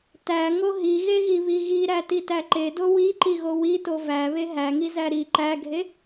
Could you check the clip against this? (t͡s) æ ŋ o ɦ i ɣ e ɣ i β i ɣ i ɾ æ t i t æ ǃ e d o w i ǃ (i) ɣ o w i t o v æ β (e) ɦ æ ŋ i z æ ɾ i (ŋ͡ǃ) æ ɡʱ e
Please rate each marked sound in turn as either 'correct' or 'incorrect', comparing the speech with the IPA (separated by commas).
incorrect, correct, correct, incorrect